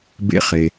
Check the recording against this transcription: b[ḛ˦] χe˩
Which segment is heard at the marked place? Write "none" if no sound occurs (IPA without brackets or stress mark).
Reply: ḛ˦